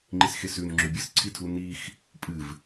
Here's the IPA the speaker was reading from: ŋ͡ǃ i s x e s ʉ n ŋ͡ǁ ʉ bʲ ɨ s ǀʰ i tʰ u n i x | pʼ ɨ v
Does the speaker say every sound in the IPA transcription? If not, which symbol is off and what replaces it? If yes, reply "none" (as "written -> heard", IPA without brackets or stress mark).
none